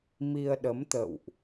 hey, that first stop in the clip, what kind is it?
implosive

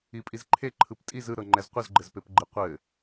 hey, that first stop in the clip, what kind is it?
ejective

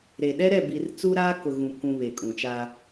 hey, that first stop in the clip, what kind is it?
implosive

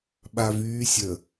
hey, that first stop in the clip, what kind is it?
implosive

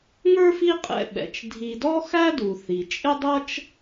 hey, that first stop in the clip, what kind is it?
ejective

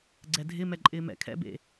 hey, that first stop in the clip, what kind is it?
click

